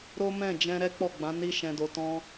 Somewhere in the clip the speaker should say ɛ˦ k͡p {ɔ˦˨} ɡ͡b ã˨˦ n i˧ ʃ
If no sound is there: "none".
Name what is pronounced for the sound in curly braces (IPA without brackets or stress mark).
ɔ˦˨